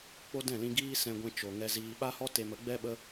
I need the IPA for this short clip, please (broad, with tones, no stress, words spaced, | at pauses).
k͡po˦dɛ̃˦˨lĩ˧ɡiː˦ sɛ̃˧ɡʷɛ̃˧ t͡ʃo˨ ŋɛ˦ziː˦ ɓa˦hɔ˦ te˧mə˨˦ɡ͡bɛ˦ ɓə˦